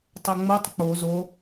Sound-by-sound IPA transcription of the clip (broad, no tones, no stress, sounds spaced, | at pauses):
tˤ ɤ ŋ͡m o tˤ k͡p o z o